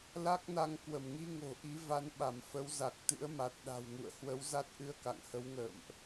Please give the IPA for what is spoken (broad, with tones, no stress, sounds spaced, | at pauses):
l a˦˥ k̚ n a˧ ŋ k w ə˧˩ m ŋ i˧ ŋ o̤˨˩ ʔ i˨˦ v a˨˦ n ɓ a˧˩ m f ə˨˦ w z a˨˩ k̚ t̪ ɨ̰˧˥ ə̯ m a˨˩ t̚ ɗ a̤˨˩ w ŋ ṵ˧˨ ə̯ h w ə˨˦ w z a˦˥ t̚ ʔ ɨ˧ ə̯ k a̰˧˨ ŋ h ə˨˦ w ŋ ə̰ː˧˨ m ʔ